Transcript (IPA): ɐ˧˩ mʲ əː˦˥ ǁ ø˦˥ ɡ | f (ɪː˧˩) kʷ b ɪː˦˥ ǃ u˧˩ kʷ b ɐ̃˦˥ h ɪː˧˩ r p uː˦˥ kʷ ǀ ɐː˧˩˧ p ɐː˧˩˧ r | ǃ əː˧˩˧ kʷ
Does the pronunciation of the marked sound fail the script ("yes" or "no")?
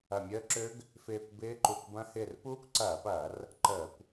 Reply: no